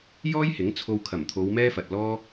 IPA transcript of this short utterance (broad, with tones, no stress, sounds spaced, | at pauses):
j ɔː˥ j h ɪ˨˥ ŋ t͡sʰ o˧ w kʰ ɐ˨˩ m t̪ʰ o˨˧ w m ɛː˥ f ɐ˨ t̚ l ɔː˥